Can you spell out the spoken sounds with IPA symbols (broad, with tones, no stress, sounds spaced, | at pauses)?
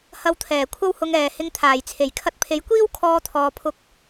h ɐ˧ w t̪ʰ ɛː˨˩ kʷʰ ɐ˧ w h ʊ˨ ŋ ɛː˨˩ h ɪ˧ ŋ t̪ʰ aː˨˩ j t͡sʰ e˨˩ j kʰ ɐ˧ t̚ pʰ e˨˥ j kʷ iː˥ w kʰ ɔː˧ t̪ʰ ɔː˨ pʰ ʊ˨˥ k̚